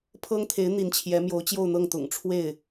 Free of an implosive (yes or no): yes